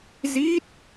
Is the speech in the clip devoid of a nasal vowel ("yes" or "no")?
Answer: yes